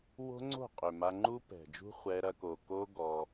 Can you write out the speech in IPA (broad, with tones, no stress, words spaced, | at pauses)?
wo̤˦ŋ͡ǀo̤˦˨qʼø˨ ma˧ŋ͡ǃu˦pɛ̤˨d͡ʒṳ˦ χʷɛ˧ɾɐ˧ ko˨ko˦ ɡɔ˧